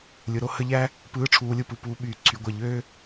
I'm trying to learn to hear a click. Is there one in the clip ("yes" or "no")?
yes